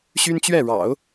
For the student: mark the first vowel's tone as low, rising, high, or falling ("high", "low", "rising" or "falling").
high